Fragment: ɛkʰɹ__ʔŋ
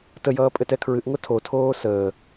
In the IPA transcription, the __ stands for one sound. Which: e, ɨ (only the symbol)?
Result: ɨ